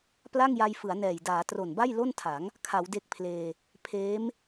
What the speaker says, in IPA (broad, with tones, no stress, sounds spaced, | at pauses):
p l a˥˩ ŋ j a˧ j f ɯ˩˦ a̯ n ɛː˨˩ j d aː˩˦ t r o˨˩ n b a˥˩ j l o˥˩ n tʰ a˩˦ ŋ | kʰ a˩˦ w d e˦˥ k̚ pʰ l eː˧ | pʰ eː˦˥ m